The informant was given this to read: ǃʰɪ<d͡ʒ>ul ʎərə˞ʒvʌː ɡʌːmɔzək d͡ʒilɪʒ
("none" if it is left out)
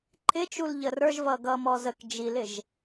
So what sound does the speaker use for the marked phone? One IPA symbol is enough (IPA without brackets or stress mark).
t͡ʃ